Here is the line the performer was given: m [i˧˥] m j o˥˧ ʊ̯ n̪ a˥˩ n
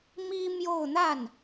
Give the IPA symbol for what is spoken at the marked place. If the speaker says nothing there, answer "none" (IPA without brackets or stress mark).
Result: i˥